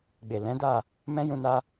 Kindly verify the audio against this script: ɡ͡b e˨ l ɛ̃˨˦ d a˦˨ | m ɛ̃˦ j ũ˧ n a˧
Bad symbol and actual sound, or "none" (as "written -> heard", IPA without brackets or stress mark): none